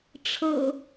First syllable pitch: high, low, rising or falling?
low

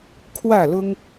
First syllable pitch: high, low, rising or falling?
falling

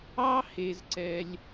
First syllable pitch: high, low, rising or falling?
high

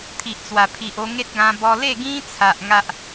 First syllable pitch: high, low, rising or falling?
low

